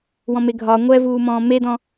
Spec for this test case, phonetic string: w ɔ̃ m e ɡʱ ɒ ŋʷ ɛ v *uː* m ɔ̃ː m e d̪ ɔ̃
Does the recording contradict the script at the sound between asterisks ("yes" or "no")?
no